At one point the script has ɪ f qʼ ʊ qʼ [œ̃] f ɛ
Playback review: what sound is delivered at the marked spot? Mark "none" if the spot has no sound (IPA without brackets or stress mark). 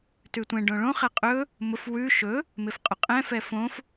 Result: ɛ̃